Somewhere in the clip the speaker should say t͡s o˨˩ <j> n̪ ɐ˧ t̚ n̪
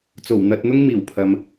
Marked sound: incorrect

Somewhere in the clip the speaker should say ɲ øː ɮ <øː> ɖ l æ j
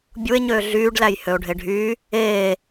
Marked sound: incorrect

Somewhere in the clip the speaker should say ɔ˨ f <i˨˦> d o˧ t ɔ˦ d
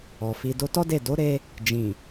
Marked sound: incorrect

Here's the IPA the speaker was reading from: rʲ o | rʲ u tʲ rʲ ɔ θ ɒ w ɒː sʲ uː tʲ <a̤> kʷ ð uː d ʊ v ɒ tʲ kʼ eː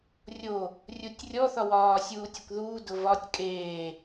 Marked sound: incorrect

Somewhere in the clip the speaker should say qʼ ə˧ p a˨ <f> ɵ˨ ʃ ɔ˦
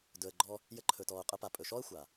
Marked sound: incorrect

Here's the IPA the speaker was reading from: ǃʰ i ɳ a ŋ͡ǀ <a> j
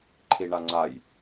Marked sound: correct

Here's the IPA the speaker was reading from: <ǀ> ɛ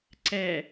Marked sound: correct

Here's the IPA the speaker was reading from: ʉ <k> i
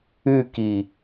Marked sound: correct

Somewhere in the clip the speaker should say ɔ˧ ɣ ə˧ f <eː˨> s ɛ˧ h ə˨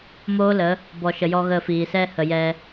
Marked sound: incorrect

